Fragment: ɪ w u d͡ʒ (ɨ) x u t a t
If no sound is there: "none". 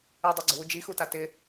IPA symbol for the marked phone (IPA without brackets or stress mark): i